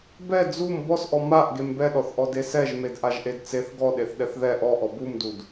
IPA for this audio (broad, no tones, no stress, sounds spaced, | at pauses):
b ɛ d͡z u m b ɔ s ʔ ɔ m a ʔ ɡ e m b ɛ ɗ ɔ θ ʔ ɔ d e s ɛ ʒ m e d ʔ a ʒ ʔ e d t͡s e θ ɡ ɔ ɗ e θ ɗ ɛ θ ð ɛ ʔ ɔ ʔ ɔ b u m d u d